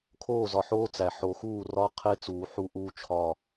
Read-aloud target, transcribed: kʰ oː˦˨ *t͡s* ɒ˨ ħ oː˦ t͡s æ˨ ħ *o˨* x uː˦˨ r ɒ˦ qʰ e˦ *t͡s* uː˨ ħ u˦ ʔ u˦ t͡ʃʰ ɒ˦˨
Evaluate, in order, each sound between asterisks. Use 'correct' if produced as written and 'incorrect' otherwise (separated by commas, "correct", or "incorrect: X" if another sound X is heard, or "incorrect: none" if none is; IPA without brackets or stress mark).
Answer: incorrect: z, correct, correct